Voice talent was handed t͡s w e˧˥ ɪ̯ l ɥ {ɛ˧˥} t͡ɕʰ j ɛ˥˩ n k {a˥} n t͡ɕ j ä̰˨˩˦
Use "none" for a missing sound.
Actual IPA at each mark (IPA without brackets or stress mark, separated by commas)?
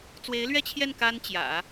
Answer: ɛ˥, a˥